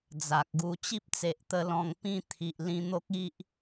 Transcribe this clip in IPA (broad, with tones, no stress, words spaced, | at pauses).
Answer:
d͡za˨k̚ɡu˧ t͡ɕi˦p̚t͡se˨ʔt̪ə˧ lɔ̃˧ŋpĩ˥˧t̪ʰi˨ʔ lĩ˧n̪o˦k̚i˦ʔ